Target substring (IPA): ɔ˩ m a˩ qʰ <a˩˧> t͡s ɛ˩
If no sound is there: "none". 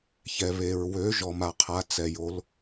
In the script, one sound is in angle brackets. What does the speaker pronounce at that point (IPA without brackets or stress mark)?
a˩˧